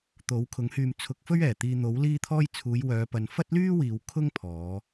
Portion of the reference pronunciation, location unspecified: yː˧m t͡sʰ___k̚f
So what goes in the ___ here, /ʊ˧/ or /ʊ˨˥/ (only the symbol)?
ʊ˨˥